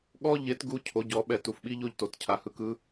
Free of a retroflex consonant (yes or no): yes